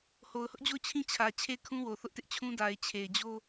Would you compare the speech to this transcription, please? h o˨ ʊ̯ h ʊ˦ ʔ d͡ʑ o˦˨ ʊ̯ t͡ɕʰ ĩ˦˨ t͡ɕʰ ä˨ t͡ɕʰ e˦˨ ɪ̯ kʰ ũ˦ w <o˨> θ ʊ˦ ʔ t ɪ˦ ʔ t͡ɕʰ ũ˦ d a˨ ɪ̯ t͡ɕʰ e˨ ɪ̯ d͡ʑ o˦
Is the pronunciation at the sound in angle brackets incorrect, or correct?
correct